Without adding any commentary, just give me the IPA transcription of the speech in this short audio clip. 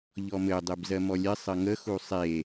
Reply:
ʎ ɔ m ɘ dˤ e b z ɜ m ɔ lʲ ɘ sˤ ɘ ŋ ə x u sˤ e

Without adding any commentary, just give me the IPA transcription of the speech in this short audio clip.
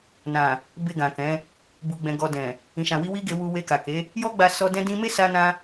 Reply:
n ã˨ | b e˧ ɡ ã˨ k ɛ̃˨˦ | b u˨ ɡ͡b ɛ̃˨ ɡ ɔ˨ d ɛ̃˨ | ĩ˨ ʃ ã˨ w i˧ w i˦ ɡ e˧ w u˧ w e˧ k a˨ k e˨˦ | j ɔ˦ ɡ͡b a˧ s ɔ˦ d ɛ̃˧ d ĩ˧ m e˦ s a˦ n ã˦

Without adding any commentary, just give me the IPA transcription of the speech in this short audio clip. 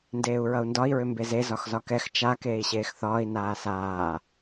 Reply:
n d eː u̯ ɹ ʌ u̯ n d ɒ i̯ ɹ ʏ m b e z e z ɒ x z ɒ k ɛ x t͡ʃ a k eː i̯ ɕ eː x θ ɒː i̯ n aː s aː

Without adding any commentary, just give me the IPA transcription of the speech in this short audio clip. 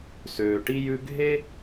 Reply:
s øː˩ ʈ i˦ j ʉ˦ ɡʱ e˥

